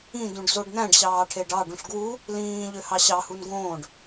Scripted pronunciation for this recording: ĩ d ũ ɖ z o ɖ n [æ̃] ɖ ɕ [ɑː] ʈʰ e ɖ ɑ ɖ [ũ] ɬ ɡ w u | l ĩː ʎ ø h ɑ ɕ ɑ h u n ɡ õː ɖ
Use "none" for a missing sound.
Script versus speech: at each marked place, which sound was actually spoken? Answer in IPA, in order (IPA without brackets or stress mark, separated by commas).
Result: æ̃, ɑː, ũ